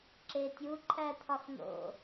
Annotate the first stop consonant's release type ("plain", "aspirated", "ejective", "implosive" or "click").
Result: click